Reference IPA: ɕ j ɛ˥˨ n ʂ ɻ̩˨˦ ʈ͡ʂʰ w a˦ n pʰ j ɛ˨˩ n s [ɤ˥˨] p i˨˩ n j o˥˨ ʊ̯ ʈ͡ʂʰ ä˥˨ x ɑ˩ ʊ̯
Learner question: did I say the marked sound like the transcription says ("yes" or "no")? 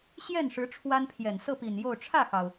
yes